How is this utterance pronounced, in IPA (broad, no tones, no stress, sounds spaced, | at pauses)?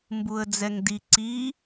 m b u ə̯ d͡z ɛ ŋ d i ǀ i